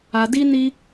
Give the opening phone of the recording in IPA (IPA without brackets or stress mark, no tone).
a